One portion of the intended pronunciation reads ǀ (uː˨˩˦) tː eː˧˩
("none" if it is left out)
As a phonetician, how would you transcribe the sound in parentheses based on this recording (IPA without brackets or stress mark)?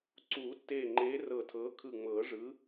uː˨˩˦